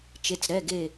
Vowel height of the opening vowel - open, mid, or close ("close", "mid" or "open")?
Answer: mid